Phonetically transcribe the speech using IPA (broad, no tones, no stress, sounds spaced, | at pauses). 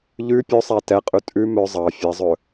ʎ ʉ pʲ ɵ sˤ æ t ɛ qʼ ʉ tʼ ʉ m œ zˤ ɑ fʲ æ zˤ ɵ